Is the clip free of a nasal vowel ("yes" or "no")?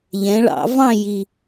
no